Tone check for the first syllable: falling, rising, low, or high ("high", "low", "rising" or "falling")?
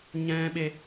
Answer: high